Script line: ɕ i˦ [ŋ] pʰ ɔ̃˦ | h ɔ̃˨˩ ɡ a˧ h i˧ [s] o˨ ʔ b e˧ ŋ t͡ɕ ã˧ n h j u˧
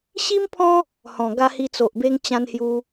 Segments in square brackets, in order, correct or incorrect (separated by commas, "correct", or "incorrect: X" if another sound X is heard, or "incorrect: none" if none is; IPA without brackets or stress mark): incorrect: m, incorrect: t͡s